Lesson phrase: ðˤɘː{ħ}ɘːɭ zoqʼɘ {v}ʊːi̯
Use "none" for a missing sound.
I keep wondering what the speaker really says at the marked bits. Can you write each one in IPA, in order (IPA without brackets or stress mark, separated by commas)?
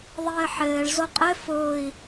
ħ, f